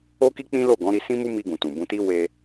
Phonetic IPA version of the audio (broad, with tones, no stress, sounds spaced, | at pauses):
o˦ k i˦ k͡p ĩ˦ l o˦˨ ɡ ɔ̃˨˦ ɾ i˧ s ĩ˦ m u˦ m i˧ ɡ ũ˨ t ũ˨ b ũ˧ t i˦ w e˧